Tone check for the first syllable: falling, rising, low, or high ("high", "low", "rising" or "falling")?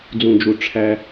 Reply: low